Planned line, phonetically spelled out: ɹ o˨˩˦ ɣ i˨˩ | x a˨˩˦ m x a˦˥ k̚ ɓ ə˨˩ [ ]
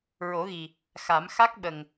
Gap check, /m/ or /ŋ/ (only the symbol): ŋ